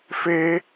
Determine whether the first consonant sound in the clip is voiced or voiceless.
voiceless